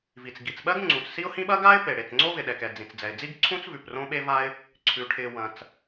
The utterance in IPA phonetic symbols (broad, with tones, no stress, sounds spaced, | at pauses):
v i˩ t͡s ɡ i˩ t͡s ɓ ɜ˥ ɡ ŋ͡ǀ ũ˩ t͡s s i˥ ʊ̯ h ĩ˥ ɓ ɐ˥ ɡ a˥ ɪ̯ p e˩ ɽ e˩ t͡s ŋ͡ǀ o˥ v ɪ˩ ɗ ɛ˩ k ɛ˩ d͡z ĩ˩ t͡s d͡z ɛ˩ ɪ̯ d͡z i˥ ɡ ǀʰ ũ˥ t͡s v ʉ˩ p r õ˥ ɓ e˥ v a˥ ɪ̯ | ǀʰ ʉ˩ ʈʰ ɪ˩ w ɐ̃˩ t͡s